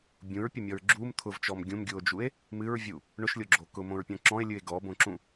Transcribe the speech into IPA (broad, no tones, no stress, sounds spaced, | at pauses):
bʲ ũ ɹ pʲ ʊ mʲ ɔ ɹ ɡ͡ǁ u m t̪ʰ ʊ v t͡ʃ ɔ m ɡʲ ũ m ɡʲ u o̯ d͡ʒ u e̯ | m ɨ ɹ vʲ u | ɳ ʊ ʃ lʲ o ɡ͡ǁ o k ʊ m õ ɹ pʲ ɔ̃ ǁ ɔ̃ e̯ lʲ ɨ e̯ ɡ ɔ b õ ǁ ũ